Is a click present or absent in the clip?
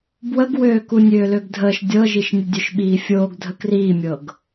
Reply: absent